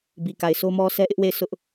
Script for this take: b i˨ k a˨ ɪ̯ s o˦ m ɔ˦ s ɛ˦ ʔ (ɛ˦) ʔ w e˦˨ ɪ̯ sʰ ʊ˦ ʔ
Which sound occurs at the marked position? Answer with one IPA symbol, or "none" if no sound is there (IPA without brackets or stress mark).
ɪ˦